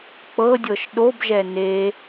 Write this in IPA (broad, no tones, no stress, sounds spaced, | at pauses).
k͡p ɤ dʲ ɤ ʃ ɗ o b ʒ ɛ n e